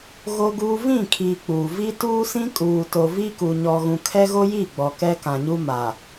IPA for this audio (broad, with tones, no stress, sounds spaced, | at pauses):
ɣ o˦ ɡ uː˦ v ĩ˦˨ kʰ iː˨ k͡p u˨ v i˦ t uː˦ s ĩ˦ kʼ uː˨ t o˨ v i˦ k u˨ ɲ ɔ˨ ɣ ũ˨ kʰ ɛ˦ ɣ o˦ j i˦˨ ɡ͡b ɔ˨ k ɛ˦ k ã˨ ɲ u˦ m a˨